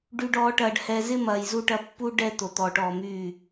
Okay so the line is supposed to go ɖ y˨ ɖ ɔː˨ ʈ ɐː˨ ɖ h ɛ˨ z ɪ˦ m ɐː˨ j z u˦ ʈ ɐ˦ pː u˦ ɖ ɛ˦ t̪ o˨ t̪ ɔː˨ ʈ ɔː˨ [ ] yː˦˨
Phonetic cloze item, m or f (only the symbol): m